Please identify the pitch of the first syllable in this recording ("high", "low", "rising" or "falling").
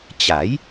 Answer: rising